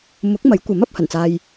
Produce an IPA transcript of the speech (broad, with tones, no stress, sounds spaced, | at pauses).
m ʊ˨˥ k̚ m ɐ˨˥ j kʷ ɐ˨˥ m ɐ˨˥ p̚ h ɐ˨˩ n t͡s aː˧ j